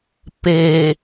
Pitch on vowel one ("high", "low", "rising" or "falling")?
low